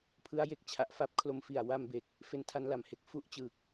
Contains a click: no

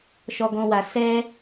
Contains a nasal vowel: yes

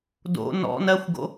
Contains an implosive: no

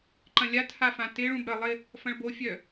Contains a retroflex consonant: yes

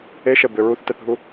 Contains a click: no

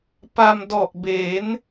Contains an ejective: no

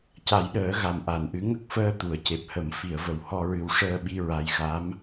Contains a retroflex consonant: yes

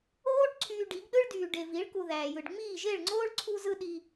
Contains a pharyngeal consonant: no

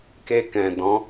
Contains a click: no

